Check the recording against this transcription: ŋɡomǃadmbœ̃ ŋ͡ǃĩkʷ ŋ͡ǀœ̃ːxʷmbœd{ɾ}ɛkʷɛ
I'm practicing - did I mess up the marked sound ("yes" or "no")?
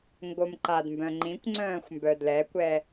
yes